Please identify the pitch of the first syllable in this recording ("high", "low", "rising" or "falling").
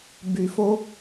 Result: low